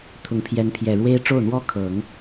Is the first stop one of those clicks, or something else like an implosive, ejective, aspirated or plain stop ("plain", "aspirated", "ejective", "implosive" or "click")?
aspirated